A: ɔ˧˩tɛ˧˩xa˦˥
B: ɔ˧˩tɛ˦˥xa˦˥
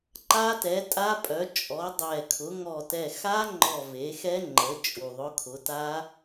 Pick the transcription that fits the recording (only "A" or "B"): A